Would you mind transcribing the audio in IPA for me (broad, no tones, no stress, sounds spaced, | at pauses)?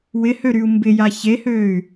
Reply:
w ɪ h ø ɾ y u̯ m b ɪ j a ç e h øː y̯